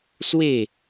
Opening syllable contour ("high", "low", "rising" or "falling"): falling